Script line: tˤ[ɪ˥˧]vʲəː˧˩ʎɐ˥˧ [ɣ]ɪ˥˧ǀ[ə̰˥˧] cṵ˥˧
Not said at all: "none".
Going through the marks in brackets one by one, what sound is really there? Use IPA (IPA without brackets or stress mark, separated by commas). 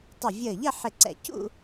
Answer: ɪ˧˩, ħ, ɛ̰˥˧